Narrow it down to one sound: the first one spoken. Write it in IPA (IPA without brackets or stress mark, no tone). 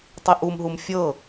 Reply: tˤ